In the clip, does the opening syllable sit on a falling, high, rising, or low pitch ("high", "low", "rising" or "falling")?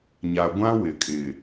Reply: low